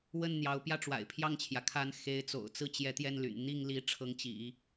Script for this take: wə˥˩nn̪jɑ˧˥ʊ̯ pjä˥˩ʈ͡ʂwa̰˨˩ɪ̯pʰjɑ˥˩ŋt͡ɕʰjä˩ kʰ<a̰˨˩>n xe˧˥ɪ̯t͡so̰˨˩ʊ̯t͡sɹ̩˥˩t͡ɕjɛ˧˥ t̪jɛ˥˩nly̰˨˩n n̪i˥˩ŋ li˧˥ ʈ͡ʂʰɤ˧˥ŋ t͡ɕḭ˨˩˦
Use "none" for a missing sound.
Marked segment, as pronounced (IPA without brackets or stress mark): a˧˥